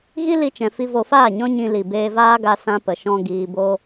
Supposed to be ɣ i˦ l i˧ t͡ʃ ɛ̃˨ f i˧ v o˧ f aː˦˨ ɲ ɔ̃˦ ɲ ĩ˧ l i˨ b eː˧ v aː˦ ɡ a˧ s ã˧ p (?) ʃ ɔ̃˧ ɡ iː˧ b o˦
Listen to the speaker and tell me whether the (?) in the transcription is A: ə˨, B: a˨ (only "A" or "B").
A